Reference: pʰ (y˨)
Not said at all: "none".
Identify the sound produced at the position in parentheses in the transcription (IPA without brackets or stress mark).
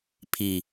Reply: i˨